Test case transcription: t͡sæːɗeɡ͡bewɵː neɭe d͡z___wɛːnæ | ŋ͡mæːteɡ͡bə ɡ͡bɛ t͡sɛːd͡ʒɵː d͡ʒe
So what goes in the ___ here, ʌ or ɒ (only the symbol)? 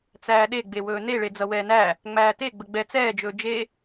ʌ